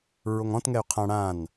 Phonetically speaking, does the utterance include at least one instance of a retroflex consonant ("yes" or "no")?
yes